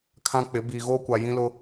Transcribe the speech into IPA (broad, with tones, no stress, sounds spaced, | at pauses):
kʰ ã˦ k͡p ɪ˨˦ b iː˨ ɣ oː˦ kʷ a˨ j ĩ˦ l ʊ˦